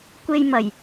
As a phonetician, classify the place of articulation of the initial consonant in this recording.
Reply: velar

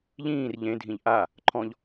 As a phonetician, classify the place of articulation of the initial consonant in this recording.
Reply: palatal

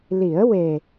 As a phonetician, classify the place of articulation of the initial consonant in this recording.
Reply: alveolar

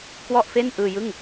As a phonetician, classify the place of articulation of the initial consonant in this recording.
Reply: velar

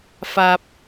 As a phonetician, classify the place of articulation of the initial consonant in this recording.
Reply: labial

